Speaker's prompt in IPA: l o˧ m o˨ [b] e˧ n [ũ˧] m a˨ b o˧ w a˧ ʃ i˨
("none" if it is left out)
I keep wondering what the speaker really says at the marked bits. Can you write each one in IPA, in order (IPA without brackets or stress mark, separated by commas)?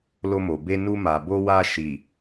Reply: b, u˧